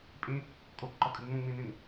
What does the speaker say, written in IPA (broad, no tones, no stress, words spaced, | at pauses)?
pʼĩ | kʼokǃɒkʼɨ ŋ͡mũŋ͡mĩnĩn